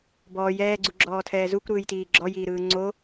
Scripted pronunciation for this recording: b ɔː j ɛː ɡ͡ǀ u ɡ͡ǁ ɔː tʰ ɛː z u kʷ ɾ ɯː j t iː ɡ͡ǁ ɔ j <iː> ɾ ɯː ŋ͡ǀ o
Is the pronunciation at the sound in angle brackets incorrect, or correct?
correct